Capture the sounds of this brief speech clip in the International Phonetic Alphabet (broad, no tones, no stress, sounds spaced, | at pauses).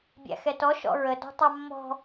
bʲ æ̰ x ɛ t ɔ ʃ ɔ̰ ɹ ə d ɔ̤ tˤ ɑ mː ɔ̤